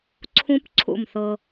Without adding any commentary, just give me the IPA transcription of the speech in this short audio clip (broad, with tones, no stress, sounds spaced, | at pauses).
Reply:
ǀʰ ũ˦ p ǀʰ ṵ˦˨ m θ ɤ˦